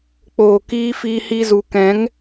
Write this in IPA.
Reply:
k͡p oː˨ k iː˧ f iː˧ h i˧ z u˨ k ɛ̃˨˦ ŋ

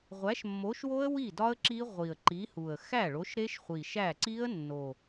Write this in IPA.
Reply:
ʁʷ æ˨˥ ʃ mː o˨˥ ʃ w o˦˥ ə̯ w i˥˩ d ɒ˦˥ ə̯ ǁ i˦˥ ʁʷ i˨˩ ə̯ ǃ i˨˥ h u˨˩ ə̯ x æ˥˩ ɭ o˨˥ ʃ ɾ e˦˥ ʃ χʷ i˨˩ ʃ æ˥˩ ǀ i˦˥ ə̯ nː o˨˩

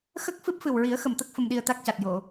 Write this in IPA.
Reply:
x ə˦˥ k̚ f ɨ˦˥ p̚ f ɨ˨˩ w ɹ i˨˩˦ ə̯ x ə˨˩ m t̪ ə˦˥ k̚ f ə˧ m ɗ i˧ ə̯ t̪ a˦˥ k̚ c a˨˩ t̚ j o˨˩˨

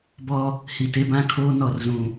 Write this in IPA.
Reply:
b ɔ˦ | h i˨ t e˦ b ã˦ kʰ oː˦ n ɔ˨ r z ũ˨

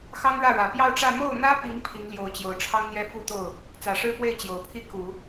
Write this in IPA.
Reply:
x ɑ˥ ŋ ɻ ä˥˩ ɻ ä˨˩ p j ɑ˥˧ ʊ̯ ʈ͡ʂ ä˥˧ m o˥˩ ʊ̯ n̪ ä˥ p i˧˥ ŋ pʰ i˧˥ ŋ l j o˧˥ ʊ̯ t͡ɕ j o˨˩ ʊ̯ ʈ͡ʂʰ ɑ˥ ŋ n̪ j ɛ˥ f u˥˧ t̪ o˥˩ ʊ̯ | t͡s ä˨˩ ʂ ɻ̩˥ p w e˥˩ ɪ̯ t͡ɕ j o˨˩ ʊ̯ pʰ i˥ k u˨˩˦

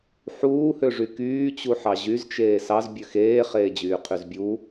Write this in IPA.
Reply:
ħ uː h ø ʐ y k yː t͡ɕ u ħ ɑ ʑ y z t͡ʃ eː s ɑ z bʲ ø x eː χ eː d͡ʑ yː qʰ y z bʲ u

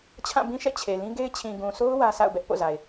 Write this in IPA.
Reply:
t͡ɕʰ ã˦˨ b ĩ˦ ʃ ɛ̰˦˨ t͡ɕʰ e˨ l ĩ˦ ɡ e˦ ɪ̯ t͡ɕʰ ĩ˨ ɡ ũ˨ s o˦ ʊ̯ w ä˦ s a̰˦˨ ʊ̯ b ɛ˦ ʔ p o̰˦˨ z a˨ ɪ̯

